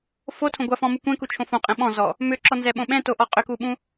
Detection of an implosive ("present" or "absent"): present